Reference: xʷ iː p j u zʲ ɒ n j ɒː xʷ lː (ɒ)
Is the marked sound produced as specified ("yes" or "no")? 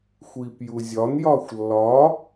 no